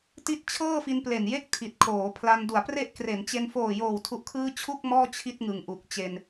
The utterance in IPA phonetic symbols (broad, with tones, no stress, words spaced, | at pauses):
ti˦˥t̚ t͡ɕʰɤː˥˩fi˧nple˨˩nje˥˩k̚ tʰi˨˩t̚kʰoː˩˦pʰla˧n du˩˦a̯pre˦˥ʔkre˩˦nt͡ɕe˧n foː˨˩joː˨˩wtʰu˨˩ʔkʰɯː˧ t͡ɕʰu˥˩k̚ mɔː˥˩ t͡ɕʰi˥˩t̚ŋɯ˨˩ŋʔu˨˩k̚t͡ɕe˧n